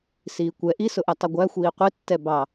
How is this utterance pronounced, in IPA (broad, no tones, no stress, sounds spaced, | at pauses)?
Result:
s iː kʷ ɛ ʔ i s ʊ ʔ ɛ tˤ ʌ ɡʷ æ xʷ iː qʷ i tː ɛ b ɑ